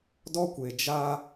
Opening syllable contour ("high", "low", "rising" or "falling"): high